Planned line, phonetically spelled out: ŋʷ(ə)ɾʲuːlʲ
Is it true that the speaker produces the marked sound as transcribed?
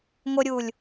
yes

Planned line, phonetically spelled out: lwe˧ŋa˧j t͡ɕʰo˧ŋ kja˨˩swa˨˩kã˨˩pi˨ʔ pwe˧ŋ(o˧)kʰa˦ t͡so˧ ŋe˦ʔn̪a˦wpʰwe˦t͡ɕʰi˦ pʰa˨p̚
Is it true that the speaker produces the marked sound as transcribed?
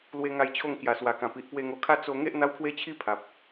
yes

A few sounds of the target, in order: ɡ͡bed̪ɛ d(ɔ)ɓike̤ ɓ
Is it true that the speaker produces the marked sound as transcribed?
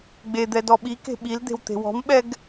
yes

